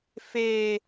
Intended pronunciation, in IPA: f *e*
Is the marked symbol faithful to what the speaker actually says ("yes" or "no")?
yes